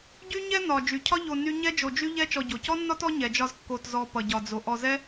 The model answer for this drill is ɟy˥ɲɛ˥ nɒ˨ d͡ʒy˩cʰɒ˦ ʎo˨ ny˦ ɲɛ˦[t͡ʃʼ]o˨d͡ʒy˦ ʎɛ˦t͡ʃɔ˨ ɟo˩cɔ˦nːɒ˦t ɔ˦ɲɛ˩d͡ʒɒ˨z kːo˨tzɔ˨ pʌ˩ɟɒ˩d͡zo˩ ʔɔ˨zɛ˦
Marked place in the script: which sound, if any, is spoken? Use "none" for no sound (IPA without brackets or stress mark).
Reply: d͡ʒ